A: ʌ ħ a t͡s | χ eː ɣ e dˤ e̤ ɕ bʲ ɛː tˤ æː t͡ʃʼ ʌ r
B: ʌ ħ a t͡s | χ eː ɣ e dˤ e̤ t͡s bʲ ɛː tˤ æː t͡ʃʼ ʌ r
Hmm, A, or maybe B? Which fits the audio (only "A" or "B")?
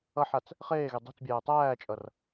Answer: B